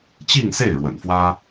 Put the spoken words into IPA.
t͡ɕi˥˧ŋse˥˩ɪ̯ ɻwə̰˨˩nfwä˥

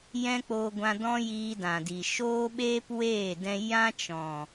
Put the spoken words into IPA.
jɛ̃˦k͡poː˧ɡʷã˧ dɔ̃˦jiː˧dã˨di˨ ʃoː˦ɓeː˦pweː˦˨dɛ̃˧ jã˦t͡ʃɔ̃˨

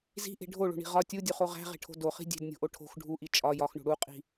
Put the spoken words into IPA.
zi̤ʔe̤ ɖʱoɭo̤ɳi̤ ʁɒ tʲudʲuχo ʁæ̤ʁe̤ʈʰo̤ doχi̤ dʲe̤dnʲo̤ʔo ʈʰo̤x ɖʱuʔi t͡ʃʼɒ jɒxɳo̤ ɽuqʼi̤

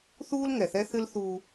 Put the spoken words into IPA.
θuː˦lŋɛ˨θɛ˦θɨ˦l θuː˦

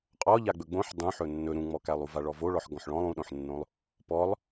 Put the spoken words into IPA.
qʼɔ ʎaɡ͡bɵɡ͡bõħ dˤũ ħɵnːɵ ɾũŋ͡mɔkælˠ uvaɭɔvo ɭɔħɡɔ̃ħɭɔ̃lˠ ũɗõħnːõlˠ | pɔlˠ

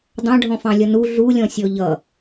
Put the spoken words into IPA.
dˤɑ̃ɖʱɔ̃fɑ̃lʲʌ nu ɮulʲɔ̃sʲɔ ʎʌ

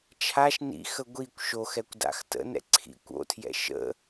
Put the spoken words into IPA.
t͡ʃʰaʃ nḭxə ɡʷikʷ ʃoxɛkʷ da̰xtə̰nɛ̰ ǀʰḭkʷ o̰tʰjɛ̰ ʃə̰

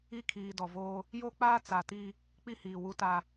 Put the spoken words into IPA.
i˦˨kʰiː˨dɔ˨voː˦ | jo˦k͡paː˦ t͡sa˨ti˦ | k͡pi˦hiː˨ wu˦ta˦

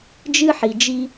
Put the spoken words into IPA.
d͡ʒɨ˦ħi˨d͡ʒi˦

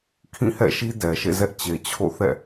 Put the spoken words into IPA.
kʰĩ˦˨hɛ̰˦˨ʃi˦ dɛ˨ ʃḛ˦˨ zɛ˦ʔ t͡ɕe˨t͡ɕʰo̰˦˨ θɛ̰˦˨

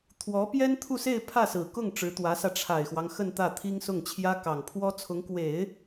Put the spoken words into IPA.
t̪ʰwɔ˧˥pjɛ˥nt̪ʰu˥˧se˥˧ɪ̯ pʰä˥˩sɹ̩˨˩kʊ˥˩ŋ ʈ͡ʂɻ̩˧˥t̪wä˧˥sä˧ ʈ͡ʂʰa˨˩ɪ̯xwɑ˦ŋ xə˥˧n t̪ä˥˩t̪ʰi˥ŋsʊ˥˩ŋt͡ɕʰjä˥ kɑ˨˩ŋpʰwɔ˥t͡sʰʊ˧˥ŋ kwe˨˩˦ɪ̯

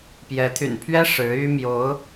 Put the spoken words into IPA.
pjɛ˧˥ t̪ʰy̰˨˩npʰɥɛ˥ ʂɻ̩˧˥y˥mjo˧˥ʊ̯

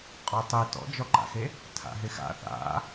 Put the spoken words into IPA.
qʼɔtˤi tɔ̰d͡ʒɔǃa̰xe | tʰa̰ɦɪxa̰ θa̰

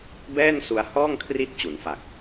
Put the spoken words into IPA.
bɛː˥˩nsu˧a̯ hɔː˥˩ŋkʰri˦˥t̚ t͡ɕu˩˦nfa˨˩k̚

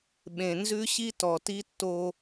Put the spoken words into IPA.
ɓẽ˨ nzʉ˦ɕi˦tɔ˨ti˦ tːo˦

